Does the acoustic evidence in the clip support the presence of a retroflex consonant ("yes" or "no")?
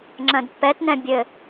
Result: no